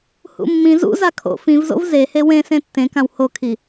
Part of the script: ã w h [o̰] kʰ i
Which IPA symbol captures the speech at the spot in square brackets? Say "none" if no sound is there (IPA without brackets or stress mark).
o